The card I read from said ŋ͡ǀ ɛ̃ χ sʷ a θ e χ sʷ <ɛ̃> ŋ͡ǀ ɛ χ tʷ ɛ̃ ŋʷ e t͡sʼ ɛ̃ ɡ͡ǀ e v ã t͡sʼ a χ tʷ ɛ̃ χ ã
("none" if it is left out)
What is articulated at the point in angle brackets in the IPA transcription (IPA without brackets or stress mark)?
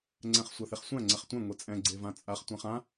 æ̃